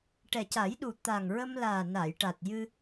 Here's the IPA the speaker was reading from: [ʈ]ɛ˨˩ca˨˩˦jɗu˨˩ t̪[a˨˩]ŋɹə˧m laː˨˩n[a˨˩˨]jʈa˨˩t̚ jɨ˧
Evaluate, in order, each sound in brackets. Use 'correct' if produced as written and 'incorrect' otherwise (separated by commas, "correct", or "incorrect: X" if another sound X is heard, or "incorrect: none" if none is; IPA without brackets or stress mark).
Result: correct, correct, correct